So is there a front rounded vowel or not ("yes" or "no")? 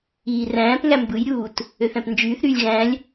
yes